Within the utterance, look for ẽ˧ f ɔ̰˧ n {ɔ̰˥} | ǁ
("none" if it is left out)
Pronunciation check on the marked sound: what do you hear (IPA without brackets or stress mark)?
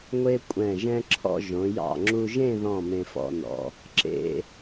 ɔ̰˩˧